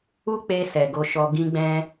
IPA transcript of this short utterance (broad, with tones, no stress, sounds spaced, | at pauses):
u˦ k͡p e˧ s ɛ˨ ɡ o˨˦ ʃ ɔ˧ ɡ ĩ˦ ɡ͡b ɛ̃˦